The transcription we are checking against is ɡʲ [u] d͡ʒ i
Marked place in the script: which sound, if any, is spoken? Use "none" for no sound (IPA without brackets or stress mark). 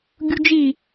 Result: u